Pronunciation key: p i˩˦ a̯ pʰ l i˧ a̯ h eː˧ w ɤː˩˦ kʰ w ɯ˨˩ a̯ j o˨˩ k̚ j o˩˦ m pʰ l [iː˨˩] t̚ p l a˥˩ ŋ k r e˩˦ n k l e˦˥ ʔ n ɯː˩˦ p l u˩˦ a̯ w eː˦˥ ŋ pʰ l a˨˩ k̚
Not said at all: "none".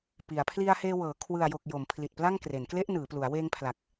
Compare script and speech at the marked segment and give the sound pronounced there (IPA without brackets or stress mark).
i˨˩